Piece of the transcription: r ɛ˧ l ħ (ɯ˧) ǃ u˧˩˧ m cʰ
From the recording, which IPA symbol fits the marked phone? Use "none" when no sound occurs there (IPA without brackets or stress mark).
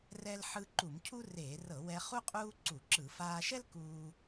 ɯ˧